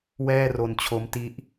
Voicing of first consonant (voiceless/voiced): voiced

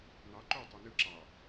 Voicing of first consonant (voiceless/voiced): voiced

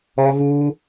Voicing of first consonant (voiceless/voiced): voiced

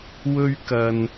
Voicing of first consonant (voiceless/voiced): voiced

